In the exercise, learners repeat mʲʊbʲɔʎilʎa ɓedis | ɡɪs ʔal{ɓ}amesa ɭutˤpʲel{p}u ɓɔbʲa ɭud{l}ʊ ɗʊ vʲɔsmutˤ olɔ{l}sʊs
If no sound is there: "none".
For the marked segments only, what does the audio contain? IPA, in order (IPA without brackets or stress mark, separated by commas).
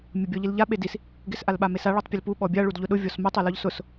ɓ, p, ʎ, ʎ